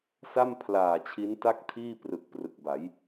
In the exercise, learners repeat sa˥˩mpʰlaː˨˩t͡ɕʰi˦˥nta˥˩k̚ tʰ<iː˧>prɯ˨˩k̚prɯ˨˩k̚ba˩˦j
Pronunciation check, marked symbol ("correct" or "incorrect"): incorrect